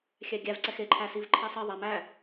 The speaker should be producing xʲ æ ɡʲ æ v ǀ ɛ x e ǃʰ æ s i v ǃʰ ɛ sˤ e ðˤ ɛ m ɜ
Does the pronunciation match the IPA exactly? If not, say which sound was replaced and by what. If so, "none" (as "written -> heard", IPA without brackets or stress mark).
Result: ɜ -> æ